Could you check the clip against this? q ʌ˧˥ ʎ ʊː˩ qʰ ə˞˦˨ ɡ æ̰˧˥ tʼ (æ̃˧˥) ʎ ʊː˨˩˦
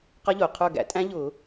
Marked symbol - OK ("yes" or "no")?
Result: yes